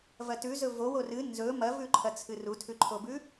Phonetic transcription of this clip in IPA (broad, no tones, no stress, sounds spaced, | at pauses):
v ɐ t ʉ z ɵ v o w o r ɨ n z ɵ m ɐ v ʉ ǃʰ ɐ t͡sʰ ɨ r u tʰ ʉ ǃʰ o b ʉ